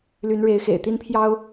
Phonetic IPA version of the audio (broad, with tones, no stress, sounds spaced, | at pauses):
l y˨˦ n ɻ e˨˦ ɪ̯ x ḛ˨˩ ɪ̯ t̪ i˦ n pʰ j ɑ˦ ʊ̯